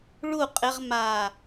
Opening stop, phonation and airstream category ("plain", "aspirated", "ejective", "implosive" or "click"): ejective